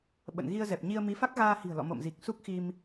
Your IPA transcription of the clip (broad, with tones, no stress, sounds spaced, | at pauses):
ɓ ə̰˧˨ n ɣ i˧ ə̯ z ɛ˨˩ p̚ ɲ i˧ ə̯ m i˨˦ f a˦˥ k̚ ɣ aː˧ h i̤˨˩ ə̯ l ɔ̰˧˨ m o̰˧˨ m z i˨˩ k̚ s u˦˥ k̚ x i˧ m